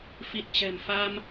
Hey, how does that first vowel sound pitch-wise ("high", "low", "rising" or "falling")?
low